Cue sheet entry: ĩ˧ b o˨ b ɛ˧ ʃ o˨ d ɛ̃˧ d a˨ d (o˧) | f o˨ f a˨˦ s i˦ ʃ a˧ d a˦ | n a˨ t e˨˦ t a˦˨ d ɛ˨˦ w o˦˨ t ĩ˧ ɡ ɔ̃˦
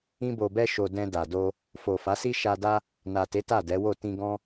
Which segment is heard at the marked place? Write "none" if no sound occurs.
o˧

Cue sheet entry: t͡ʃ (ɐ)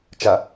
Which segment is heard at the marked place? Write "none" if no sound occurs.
ɐ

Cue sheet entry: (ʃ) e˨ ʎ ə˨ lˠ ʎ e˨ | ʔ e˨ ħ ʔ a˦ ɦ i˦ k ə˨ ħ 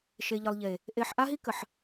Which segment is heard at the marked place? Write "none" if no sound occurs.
ʃ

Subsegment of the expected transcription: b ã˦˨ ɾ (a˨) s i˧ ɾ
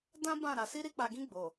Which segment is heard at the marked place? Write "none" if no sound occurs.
a˨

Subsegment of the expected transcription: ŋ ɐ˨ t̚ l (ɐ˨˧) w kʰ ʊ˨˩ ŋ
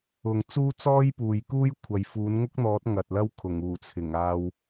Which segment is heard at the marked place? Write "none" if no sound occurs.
ɐ˥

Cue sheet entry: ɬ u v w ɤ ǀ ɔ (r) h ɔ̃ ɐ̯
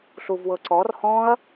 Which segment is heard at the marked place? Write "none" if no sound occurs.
r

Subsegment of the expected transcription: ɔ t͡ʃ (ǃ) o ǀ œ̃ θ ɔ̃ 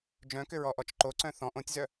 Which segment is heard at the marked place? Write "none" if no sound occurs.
ǃ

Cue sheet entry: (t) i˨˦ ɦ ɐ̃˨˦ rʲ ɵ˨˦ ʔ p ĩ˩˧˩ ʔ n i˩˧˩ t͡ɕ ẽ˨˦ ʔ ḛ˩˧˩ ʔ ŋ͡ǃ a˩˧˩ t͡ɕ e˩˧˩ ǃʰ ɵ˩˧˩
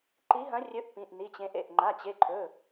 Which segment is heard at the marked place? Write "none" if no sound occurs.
ǃ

